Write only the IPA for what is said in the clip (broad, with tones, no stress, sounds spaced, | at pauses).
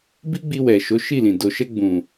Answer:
b i˦ ɡ͡b i˧ w ɛ˨ ʃ o˨˦ ʃ i˦˨ l ĩ˨ d o˨ ʃ ɛ˧ ɡ͡b ũ˨